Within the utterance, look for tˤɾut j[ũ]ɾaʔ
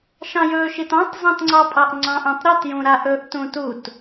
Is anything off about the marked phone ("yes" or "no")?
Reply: no